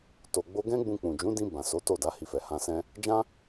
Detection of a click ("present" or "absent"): absent